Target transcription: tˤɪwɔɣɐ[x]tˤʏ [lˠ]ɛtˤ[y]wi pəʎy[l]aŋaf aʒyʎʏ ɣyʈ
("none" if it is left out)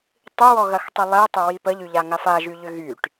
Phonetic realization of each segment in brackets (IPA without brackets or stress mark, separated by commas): x, lˠ, ʏ, ʎ